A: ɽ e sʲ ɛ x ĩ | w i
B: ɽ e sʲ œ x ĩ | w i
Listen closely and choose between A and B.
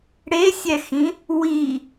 A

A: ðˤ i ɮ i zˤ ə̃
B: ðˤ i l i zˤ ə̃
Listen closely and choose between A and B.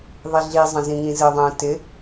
A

